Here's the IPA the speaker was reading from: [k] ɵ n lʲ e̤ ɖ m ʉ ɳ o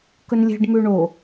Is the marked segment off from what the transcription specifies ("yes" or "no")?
no